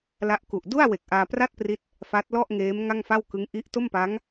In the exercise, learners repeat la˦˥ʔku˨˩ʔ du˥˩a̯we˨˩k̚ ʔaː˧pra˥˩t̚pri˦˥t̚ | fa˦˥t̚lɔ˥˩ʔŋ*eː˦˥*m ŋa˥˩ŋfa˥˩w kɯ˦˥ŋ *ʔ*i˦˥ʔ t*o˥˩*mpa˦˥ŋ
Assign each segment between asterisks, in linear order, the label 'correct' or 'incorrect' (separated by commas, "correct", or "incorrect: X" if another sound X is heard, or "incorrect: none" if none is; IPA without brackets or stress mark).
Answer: correct, correct, correct